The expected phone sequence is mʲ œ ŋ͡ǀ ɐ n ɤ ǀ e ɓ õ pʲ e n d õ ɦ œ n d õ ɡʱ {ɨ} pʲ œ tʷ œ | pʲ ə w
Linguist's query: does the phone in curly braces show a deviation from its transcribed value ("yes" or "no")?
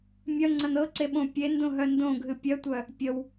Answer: no